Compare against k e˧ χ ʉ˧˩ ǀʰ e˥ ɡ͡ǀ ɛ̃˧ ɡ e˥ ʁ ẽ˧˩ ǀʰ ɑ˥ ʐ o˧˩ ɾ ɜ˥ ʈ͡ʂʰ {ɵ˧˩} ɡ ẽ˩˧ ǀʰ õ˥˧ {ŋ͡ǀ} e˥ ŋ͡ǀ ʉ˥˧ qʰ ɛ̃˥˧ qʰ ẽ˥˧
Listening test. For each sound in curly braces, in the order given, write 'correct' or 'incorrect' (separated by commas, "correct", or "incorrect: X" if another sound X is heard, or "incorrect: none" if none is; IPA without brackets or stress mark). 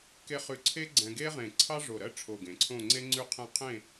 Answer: incorrect: o˧˩, correct